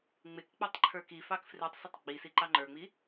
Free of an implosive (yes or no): yes